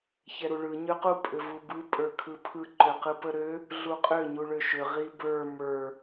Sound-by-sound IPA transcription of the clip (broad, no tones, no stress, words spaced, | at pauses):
çɛɾuɭɯ ɲøqu pʼʏvubɯ pʼə˞kʰɯpʰɯ ǃʏqɯpəɾø | ɮuqʼʏ ɲuɭøʃʏ ʁibə˞ mə˞